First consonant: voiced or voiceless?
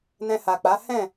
voiced